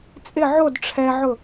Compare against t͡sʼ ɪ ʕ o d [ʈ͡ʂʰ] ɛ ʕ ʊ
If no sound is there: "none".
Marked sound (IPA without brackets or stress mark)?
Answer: ʈ͡ʂʰ